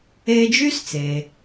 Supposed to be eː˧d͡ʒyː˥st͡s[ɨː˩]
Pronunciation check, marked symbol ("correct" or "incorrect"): incorrect